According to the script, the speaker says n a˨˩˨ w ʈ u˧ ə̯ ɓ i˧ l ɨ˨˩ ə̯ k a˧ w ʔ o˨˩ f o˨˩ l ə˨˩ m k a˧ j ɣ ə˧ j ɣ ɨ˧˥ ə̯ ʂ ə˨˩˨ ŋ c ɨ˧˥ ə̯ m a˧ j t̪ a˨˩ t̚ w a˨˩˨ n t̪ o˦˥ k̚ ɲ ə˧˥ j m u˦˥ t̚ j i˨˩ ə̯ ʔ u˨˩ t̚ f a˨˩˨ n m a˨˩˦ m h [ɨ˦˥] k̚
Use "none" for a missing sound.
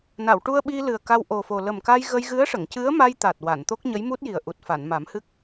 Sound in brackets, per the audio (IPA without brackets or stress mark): ɨ˦˥